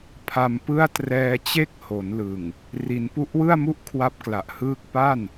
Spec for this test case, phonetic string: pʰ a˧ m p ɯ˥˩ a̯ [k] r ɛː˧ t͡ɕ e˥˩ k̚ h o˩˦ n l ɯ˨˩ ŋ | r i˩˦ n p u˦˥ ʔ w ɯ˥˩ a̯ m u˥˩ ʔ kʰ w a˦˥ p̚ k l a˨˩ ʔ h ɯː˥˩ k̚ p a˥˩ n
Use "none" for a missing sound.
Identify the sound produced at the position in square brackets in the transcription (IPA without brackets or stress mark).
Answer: t